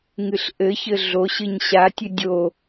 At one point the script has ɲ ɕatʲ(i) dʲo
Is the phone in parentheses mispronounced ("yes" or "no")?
yes